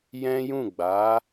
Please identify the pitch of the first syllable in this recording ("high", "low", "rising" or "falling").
high